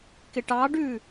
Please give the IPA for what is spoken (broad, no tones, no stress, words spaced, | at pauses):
kɪʈɑɖʉ